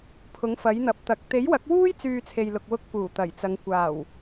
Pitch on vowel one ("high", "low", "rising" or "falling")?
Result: rising